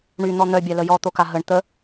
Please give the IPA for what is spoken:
ɳ y n̪ ɔ n̪ œ bʲ a l ə j ɔ t̪ o k a ɦ ə ɳ t̪ ə

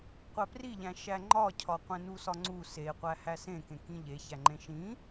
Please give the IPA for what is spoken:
qʷ æ p r i ʎ æ̃ ʃ æ ŋ͡ǃ ɒ cʰ ɒ qʷ ẽ n u s ɒ ŋ͡ǀ u s e qʷ æ h æ s ẽ k ẽ k ĩ ʎ e ç æ ŋ͡ǃ ẽ ʃ ĩ

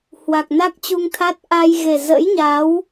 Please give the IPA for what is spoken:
h w a˨˩ k̚ n a˦˥ k̚ t͡ɕ u˧ ŋ t̪ʰ a˦˥ t̚ ʔ aː˧ j ɣ e˨˩ z ə̰˧˥ j ɲ a˨˦ w

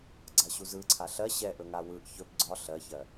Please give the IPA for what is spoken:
ɡ͡ǀ a ɕ u z ɯ ǀʰ a ɬ ɜ ɕ ɛ ʔ ɵ ŋ a w ɯ ʔ ç ɵ b ɡ͡ǀ ɒ ɬ ɜ ç ɜ

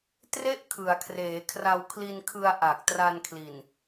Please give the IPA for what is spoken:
t r e˥˩ ʔ kʰ ɯ˩˦ a̯ kʰ r eː˩˦ kʰ r a˧ w kʰ l i˧ n kʰ ɯ˧ a̯ ʔ a˨˩ k̚ t r a˧ n kʰ l i˨˩ n

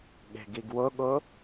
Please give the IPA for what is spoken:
ɠ e̤ ɡ i ɡ w ʊ ɠ ʊ

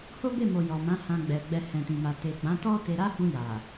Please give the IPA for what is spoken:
h o˦ b e˦˨ m o˨ j ɔ˨ m ã˨˦ h ã˧ ɡ͡b ɛ˨ ɡ͡b ɛ˧ h ɛ̃˧ t ĩ˧ m a˧ t e˨ ɡ͡b ã˨˦ t ɔ˦ t e˧ ɾ a˦ h ũ˧ j a˨

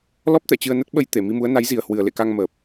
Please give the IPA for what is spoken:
l ɔ˦˥ p̚ t̪ ɛ̰˧˨ t͡ɕ ɨ˧ ə̯ n ə˦˥ t̚ ɓ ə˧ j t̪ e˧˩ m i˧ m u˨˦ ə̯ n a˨˦ j z i˨˩ ə̯ h w ɨ˨˩ ə̯ l ḛ˧˨ k a˧ ŋ m əː˨˩ p̚

